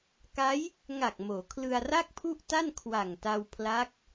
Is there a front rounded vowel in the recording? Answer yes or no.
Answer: no